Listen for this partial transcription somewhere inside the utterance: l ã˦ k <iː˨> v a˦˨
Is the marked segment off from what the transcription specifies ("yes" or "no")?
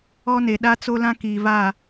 no